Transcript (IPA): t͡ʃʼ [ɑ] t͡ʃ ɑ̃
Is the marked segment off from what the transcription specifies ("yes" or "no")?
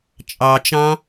no